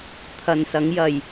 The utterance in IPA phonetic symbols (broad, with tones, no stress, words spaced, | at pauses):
t̪ʰɐ˨nsɐ˨˧ŋjɐ˨j